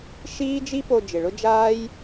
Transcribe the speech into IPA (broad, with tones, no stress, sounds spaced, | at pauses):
ʃ iː˦ d͡ʒ i˦ p o˧ d͡ʒ ɪ˨ ɭ ʊ˦ d͡ʒ aː˦ j